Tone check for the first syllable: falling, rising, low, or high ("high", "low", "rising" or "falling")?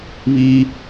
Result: high